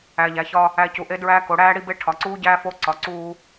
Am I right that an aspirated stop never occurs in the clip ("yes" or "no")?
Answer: no